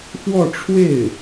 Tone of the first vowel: falling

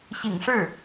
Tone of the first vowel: low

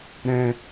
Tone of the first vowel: high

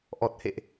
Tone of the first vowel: low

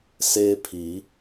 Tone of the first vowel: high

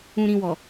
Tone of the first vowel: low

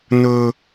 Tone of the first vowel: high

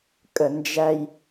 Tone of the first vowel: low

